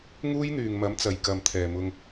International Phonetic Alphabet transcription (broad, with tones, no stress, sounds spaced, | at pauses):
ŋ uː˥ j n̪ yː˨ ŋ m ɐ˨˥ m t͡s ɐ˨ j k ɐ˨ m t̪ʰ ɛː˨ m ʊ˧ ŋ